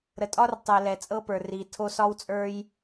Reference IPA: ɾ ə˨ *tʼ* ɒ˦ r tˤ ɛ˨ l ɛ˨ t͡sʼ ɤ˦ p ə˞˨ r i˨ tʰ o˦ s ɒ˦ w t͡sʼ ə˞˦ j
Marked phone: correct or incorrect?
correct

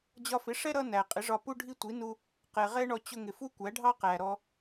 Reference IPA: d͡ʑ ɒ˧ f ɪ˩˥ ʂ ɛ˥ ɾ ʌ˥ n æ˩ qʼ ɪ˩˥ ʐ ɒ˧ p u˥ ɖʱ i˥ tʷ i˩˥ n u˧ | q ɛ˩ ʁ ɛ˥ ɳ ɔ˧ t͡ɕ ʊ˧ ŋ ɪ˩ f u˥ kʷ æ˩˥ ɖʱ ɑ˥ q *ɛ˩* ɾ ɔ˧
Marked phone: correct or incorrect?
incorrect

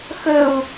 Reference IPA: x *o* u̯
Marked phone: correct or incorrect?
incorrect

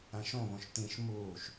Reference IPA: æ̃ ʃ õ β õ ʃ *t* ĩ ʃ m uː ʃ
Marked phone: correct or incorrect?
correct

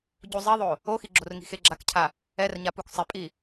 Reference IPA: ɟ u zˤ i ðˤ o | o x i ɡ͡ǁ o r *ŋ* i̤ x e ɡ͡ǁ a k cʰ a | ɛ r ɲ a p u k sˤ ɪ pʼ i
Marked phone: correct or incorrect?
correct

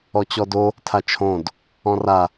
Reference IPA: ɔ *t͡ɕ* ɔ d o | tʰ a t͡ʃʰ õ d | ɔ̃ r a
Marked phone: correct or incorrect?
correct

